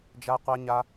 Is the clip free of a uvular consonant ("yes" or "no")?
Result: no